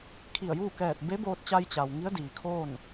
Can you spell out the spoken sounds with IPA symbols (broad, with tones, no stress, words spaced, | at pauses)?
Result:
kʰi˧˩ə̯juː˥˨kɛː˧˩t̚ be˧˥boː˧t̚t͡ɕa˧j t͡ɕa˩w ŋi˧˥ə̯diː˩kʰoː˥˨n